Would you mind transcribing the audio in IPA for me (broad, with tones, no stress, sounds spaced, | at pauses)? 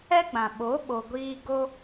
ɛ˦ ɡ͡b ã˨ ɓ o˨˦ ɓ o˨ ɡʷ iː˧ ɡ o˦